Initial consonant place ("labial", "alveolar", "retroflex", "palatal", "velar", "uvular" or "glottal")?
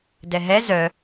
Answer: alveolar